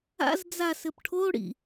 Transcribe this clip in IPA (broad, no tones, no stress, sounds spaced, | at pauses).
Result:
a̰ z d͡z a s ɘ p ʈʰ o ɽ ḭ